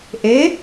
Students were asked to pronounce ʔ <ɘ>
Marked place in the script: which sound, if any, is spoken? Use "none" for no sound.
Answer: e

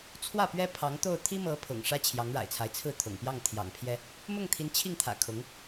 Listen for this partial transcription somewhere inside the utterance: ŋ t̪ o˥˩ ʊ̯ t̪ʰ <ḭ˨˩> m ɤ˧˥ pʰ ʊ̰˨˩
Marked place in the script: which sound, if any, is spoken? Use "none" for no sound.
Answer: i˥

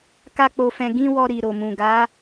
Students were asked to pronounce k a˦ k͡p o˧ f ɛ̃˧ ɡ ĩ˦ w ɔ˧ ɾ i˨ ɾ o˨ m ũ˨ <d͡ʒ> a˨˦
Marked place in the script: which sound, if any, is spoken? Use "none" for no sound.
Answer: ɡ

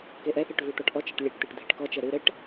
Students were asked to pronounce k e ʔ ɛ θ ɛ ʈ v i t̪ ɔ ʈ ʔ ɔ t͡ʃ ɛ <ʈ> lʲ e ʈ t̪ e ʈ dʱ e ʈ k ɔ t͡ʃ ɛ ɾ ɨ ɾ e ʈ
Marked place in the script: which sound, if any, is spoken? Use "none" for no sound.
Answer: ʈ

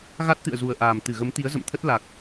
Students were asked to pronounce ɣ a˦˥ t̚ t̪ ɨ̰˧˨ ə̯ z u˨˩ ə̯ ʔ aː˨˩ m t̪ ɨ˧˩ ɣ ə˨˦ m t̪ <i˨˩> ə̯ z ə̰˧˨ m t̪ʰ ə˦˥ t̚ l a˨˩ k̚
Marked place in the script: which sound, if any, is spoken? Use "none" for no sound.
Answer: i˨˦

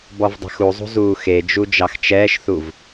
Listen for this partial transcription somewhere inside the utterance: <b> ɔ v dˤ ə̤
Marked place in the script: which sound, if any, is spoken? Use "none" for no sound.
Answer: b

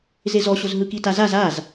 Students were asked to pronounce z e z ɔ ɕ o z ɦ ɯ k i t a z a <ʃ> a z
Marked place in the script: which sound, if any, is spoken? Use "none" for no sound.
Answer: z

